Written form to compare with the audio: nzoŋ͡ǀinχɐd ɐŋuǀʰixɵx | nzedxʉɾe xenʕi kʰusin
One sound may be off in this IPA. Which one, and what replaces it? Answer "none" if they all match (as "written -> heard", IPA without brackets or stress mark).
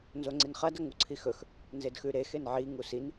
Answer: kʰ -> ŋ